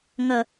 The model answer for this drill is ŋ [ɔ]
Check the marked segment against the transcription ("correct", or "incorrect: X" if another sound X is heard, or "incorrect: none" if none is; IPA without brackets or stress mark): incorrect: ʌ